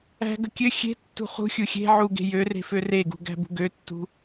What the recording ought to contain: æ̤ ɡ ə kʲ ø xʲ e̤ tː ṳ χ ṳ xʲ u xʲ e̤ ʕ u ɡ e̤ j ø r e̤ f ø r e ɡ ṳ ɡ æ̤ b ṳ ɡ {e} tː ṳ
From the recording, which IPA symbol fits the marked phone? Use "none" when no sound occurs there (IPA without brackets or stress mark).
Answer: ø